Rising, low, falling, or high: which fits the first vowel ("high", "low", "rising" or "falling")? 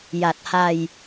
low